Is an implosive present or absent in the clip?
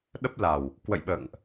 present